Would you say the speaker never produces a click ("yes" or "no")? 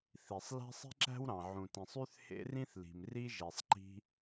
no